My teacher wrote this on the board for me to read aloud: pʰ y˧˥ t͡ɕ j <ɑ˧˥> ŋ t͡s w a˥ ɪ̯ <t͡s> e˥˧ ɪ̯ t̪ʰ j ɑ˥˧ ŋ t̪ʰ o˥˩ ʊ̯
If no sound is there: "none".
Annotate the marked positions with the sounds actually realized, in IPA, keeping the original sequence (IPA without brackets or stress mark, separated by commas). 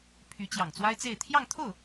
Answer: ɑ˨˩, t͡s